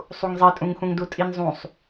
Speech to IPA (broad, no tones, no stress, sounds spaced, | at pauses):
sˤ u ŋ zˤ i tʼ ũ ŋ x ũ ŋ d u tʼ i n zˤ ũ sˤ